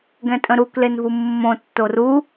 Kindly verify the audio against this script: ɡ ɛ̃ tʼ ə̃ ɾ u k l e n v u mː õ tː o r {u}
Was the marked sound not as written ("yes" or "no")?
no